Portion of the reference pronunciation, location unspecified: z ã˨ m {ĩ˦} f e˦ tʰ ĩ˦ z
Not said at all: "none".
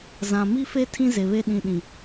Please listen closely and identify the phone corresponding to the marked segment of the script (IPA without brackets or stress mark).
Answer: i˦